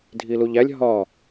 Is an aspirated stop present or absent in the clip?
absent